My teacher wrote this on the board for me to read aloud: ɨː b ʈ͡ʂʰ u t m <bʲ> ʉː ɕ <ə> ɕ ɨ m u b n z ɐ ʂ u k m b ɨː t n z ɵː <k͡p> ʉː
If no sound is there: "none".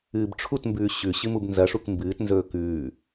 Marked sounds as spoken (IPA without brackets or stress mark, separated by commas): b, ʉ, k